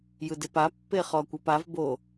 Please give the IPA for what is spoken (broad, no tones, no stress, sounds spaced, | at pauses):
j ɯ d e p a pː e χ ɔ kʷ ɤ p a v b o